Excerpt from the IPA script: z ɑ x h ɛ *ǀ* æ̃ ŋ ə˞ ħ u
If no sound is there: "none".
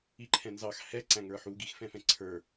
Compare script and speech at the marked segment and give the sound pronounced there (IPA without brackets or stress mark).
ǀ